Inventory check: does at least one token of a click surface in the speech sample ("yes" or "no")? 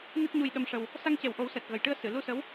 no